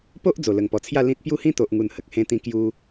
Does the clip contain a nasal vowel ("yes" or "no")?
yes